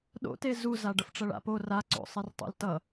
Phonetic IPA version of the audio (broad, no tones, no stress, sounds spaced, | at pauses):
ɗ o̰ t e z u z a ɖ ʌ f ʈ͡ʂ ʌ ɭ a̰ p o r a ǀ o̰ sˤ i r tˤ o̰ l t ʌ